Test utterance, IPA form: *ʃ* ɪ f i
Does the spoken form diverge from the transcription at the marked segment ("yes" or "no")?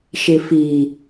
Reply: no